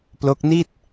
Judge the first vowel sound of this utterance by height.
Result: mid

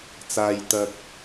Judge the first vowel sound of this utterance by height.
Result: low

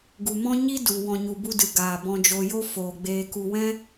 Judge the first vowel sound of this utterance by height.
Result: high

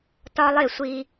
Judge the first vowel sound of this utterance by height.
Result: low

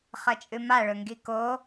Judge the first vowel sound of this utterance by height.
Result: low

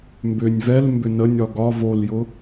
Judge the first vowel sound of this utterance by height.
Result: high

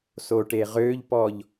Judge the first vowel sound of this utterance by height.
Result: mid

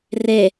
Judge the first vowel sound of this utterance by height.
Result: mid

